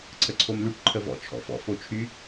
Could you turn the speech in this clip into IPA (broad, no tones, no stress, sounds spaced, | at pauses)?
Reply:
ǀʰ ə ǀʰ o m l y ʈ ǃʰ ə v ɔ̰ t͡ʃʰ ɔ̰ f ɔ̰ f o t͡ʃʰ y